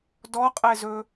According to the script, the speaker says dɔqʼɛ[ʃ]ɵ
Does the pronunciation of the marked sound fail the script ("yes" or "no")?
yes